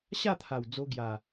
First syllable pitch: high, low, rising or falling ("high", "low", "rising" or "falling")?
falling